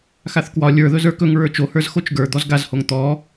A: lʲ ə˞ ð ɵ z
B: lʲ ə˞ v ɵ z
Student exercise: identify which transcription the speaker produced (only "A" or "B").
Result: A